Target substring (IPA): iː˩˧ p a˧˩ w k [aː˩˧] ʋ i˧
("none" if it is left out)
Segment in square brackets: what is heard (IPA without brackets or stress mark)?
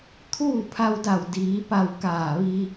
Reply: aː˧˩